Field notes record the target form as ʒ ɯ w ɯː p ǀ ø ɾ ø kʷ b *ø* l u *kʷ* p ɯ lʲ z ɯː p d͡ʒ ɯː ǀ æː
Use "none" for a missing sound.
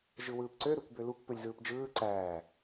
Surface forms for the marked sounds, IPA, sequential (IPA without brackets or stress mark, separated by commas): ø, kʷ